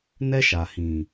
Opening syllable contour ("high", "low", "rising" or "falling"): high